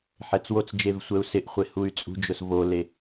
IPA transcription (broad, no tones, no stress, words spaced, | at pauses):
ħɛt͡swot͡sd͡ʒev sʷɛu̯sɪʔχʷe huy̯t͡sʼṳd͡ʒʊs vole